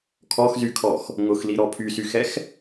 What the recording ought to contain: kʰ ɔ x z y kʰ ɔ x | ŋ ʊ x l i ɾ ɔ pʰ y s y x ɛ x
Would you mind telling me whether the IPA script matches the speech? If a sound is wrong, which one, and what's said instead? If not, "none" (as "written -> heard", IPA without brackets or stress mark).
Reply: none